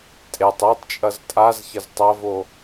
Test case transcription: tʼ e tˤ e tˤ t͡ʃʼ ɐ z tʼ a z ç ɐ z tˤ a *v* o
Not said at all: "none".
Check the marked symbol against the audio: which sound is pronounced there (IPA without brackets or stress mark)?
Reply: v